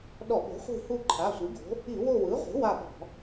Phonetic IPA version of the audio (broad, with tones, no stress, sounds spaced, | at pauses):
ɗ ɔ˧˩˧ ɓ o̤˩˥ χʷ i̤˦˨ h u˦˨ ǃʰ a˩˧˩ sʷ i˩˥ ɡ o̤˩˥ | i˧˩˧ w o˦˨ w ɯ˩˥ ʁʷ i̤˩˥ w a˦˨ ɓ ɔ̤˧˩˧